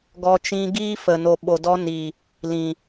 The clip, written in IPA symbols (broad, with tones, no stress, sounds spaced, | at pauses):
ɡ ɔ˧ t͡ʃ ĩ˧ ɡ iː˦ f ə˨ n o˨ ɓ o˨ d ɔ˧ n i˨ | l ĩ˨